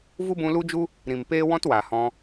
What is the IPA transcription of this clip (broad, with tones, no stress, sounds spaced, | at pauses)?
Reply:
v u˦ b ũ˧ l u˦ d͡ʒ u˦ | ɾ ĩ˨ m p eː˦ w ɔ̃˦ t w a˨ h ɔ̃˧